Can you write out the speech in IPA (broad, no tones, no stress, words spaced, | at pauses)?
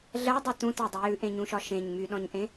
ɮɜdˤe tũtɜdˤy jʉʔẽɲũʃɒ ʃẽɲ myɗɔ̃ɲʔẽ